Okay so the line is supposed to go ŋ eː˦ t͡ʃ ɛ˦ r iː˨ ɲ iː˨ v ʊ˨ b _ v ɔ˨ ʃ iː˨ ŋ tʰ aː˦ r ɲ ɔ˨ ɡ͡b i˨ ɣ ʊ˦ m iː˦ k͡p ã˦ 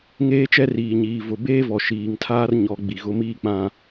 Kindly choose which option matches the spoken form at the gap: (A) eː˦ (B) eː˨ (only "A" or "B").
A